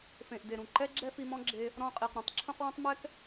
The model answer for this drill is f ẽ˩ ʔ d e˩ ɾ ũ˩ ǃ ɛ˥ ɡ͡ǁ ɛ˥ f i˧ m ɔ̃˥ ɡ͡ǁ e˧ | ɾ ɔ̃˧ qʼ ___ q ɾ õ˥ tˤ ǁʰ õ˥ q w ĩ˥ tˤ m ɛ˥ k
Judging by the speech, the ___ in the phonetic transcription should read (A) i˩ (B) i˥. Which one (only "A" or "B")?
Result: A